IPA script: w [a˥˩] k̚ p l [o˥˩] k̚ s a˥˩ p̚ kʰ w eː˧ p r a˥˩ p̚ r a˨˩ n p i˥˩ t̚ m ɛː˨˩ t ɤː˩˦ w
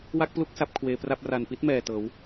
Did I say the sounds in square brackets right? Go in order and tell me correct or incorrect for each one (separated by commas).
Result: correct, incorrect